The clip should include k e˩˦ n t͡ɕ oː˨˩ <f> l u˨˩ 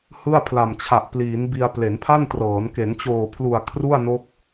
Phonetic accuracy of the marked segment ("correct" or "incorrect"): incorrect